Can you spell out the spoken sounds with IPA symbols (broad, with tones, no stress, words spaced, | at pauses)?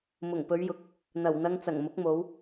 mʊ˨˩ŋpɵ˨˧ɥjʊ˨˥k̚ | n̪ɐ˨˩wn̪ɐ˧ŋ t͡sɐ˨˩ŋmʊ˨˥k̚mo˨˧w